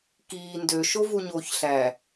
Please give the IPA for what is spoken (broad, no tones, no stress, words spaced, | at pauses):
kiː ndøʃovuɲoːç ɬæ